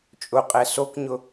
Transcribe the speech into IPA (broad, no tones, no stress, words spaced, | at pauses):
t͡ʃʼʊqʼɛ sokɲʊ